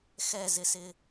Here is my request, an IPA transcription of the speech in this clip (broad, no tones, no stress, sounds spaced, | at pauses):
x ɛ z ɪ s ɪ